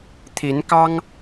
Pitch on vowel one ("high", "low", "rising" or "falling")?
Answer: rising